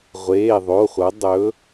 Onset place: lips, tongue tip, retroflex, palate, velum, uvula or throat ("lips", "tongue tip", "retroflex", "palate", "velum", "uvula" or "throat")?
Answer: uvula